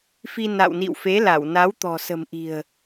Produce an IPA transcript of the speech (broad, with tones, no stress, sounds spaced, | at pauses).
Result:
f i˧ n a̰˧˨ w n ḭ˧˨ w f e˨˦ l a˧˩ w n a˨˦ w t̪ ɔ̤˨˩ s ə̤˨˩ m ʔ i̤˨˩ ə̯